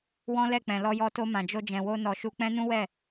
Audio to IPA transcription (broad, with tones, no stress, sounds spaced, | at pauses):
w ɔ̃˦ l ɛ˦˨ k͡p ɛ̃˨ l ɔ˧ j ɔ˧ t o˧ m ã˨ d͡ʒ o˧ d͡ʒ ɛ̃˨ w o˧ n ɔ˨ ʃ u˧ k͡p ɛ̃˦ n ũ˦ w ɛ˦˨